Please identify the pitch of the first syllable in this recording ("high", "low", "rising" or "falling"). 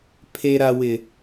high